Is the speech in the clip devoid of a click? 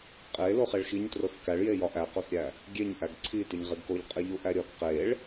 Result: no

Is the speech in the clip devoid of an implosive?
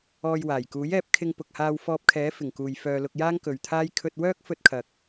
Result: yes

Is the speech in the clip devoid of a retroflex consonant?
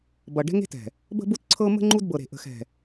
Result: no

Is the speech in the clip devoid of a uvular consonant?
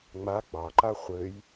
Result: no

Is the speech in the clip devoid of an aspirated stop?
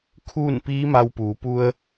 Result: no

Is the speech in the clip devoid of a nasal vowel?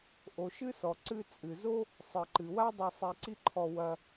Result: yes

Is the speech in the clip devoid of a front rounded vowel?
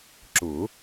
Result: yes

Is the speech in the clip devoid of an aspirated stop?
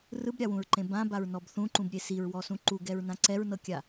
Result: yes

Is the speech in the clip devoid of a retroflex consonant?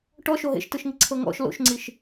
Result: no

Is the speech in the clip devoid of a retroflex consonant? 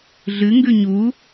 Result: yes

